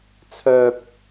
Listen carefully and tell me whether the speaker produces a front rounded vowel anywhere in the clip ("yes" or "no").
yes